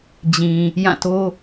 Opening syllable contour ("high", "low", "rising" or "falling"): low